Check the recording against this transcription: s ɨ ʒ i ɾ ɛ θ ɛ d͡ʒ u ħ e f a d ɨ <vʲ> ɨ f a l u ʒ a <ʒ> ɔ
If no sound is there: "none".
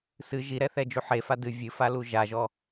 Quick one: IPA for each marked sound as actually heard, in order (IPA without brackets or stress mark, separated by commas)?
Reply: vʲ, ʒ